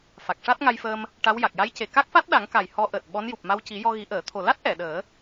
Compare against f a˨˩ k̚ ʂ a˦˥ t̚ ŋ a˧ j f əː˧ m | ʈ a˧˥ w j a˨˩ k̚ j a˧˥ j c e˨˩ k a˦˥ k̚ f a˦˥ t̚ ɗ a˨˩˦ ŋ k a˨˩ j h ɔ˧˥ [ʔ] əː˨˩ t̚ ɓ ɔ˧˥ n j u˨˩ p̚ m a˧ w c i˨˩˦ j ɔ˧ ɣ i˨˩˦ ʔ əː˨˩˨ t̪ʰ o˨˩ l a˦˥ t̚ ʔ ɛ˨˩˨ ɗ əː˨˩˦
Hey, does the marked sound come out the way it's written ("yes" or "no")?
yes